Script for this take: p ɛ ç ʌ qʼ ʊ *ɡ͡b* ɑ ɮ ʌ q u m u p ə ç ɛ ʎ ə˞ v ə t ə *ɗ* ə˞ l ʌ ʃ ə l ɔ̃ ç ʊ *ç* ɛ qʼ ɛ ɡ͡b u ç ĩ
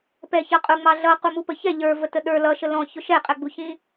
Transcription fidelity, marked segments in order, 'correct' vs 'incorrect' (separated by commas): incorrect, correct, incorrect